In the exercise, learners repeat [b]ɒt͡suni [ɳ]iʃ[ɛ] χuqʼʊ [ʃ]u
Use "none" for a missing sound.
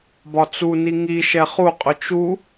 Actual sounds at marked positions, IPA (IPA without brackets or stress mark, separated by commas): b, ŋ, ɛ, t͡ʃ